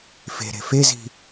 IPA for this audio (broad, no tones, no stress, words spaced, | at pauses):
fe̤ɾe̤ fezi̤